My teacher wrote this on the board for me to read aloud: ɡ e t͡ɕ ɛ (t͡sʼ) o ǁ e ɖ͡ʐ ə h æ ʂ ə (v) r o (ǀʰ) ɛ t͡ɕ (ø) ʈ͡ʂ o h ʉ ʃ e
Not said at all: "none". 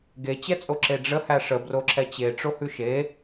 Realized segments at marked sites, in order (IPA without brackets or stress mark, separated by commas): t͡sʼ, b, ǁʰ, e